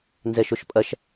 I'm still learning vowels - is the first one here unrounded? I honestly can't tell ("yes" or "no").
yes